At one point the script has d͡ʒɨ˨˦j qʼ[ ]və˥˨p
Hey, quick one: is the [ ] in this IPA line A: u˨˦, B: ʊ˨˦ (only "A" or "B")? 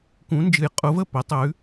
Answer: B